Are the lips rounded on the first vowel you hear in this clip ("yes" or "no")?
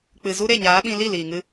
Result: no